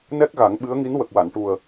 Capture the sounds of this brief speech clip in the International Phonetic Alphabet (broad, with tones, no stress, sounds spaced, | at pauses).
n ɛ˦˥ k̚ ɣ a˨˩˦ ŋ ɓ ɨ˧˥ ə̯ ŋ i˧˥ n w ə˨˩ k̚ w a˨˩˨ n ʈ u˨˩ ə̯